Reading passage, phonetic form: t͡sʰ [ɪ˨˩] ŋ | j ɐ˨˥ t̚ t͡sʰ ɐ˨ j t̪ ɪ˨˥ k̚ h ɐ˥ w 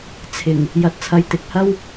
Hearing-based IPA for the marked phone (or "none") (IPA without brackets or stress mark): ɪ˨˩